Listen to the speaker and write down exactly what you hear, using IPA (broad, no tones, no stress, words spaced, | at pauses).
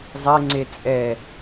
zˤe ŋ͡ǀe t͡sʼɛ